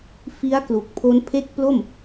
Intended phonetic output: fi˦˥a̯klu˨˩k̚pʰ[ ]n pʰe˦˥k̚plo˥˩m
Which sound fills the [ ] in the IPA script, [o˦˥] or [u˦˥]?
o˦˥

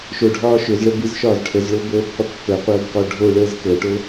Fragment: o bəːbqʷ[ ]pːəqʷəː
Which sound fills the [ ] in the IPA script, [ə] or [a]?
ə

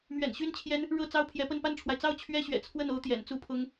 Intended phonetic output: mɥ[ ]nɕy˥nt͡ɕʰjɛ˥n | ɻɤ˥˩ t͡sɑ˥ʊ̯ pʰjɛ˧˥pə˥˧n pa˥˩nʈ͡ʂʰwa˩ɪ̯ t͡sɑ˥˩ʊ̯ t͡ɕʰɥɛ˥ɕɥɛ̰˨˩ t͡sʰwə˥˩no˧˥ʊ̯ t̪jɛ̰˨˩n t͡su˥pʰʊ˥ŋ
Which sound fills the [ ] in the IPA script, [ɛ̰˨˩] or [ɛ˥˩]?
ɛ̰˨˩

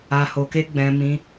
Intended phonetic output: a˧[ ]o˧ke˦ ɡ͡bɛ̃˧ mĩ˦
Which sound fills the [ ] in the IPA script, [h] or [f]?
h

